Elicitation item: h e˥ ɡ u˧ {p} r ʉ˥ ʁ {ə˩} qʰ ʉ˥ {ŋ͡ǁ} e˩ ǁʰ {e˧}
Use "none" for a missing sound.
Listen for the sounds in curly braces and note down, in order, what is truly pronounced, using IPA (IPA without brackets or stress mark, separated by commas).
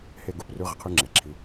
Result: p, ə˩, ŋ͡ǁ, i˧